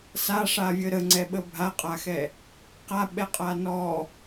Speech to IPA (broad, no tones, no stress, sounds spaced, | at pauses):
s a ʂ a vʲ ə ɾ ə ŋ͡ǀ ɛ ɓ ə bʱ a qʼ a x ɛ | q a ɓ ɛ qʼ a n ɔ